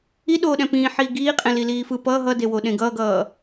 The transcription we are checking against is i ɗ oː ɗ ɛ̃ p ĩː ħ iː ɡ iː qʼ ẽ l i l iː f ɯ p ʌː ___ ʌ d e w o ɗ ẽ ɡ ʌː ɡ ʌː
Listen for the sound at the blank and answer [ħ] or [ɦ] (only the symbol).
ɦ